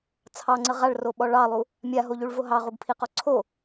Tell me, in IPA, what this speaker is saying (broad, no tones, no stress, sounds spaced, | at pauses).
t͡sʰ ɑ ŋ͡ǀ ə ʁ a ɭ r o ɓ ɔ ɭ ɑ lˠ u | mʲ a ɦ o ʎ u ɭ v o ɦ ɑ ʁ u ɡ pʰ i q ɔ ǀʰ o